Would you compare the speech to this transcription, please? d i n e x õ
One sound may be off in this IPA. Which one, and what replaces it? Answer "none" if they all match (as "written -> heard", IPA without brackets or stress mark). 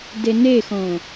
i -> e